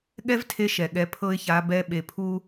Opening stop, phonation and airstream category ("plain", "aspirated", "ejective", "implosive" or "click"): implosive